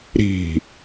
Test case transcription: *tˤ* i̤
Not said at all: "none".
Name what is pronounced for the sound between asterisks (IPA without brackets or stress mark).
ɾ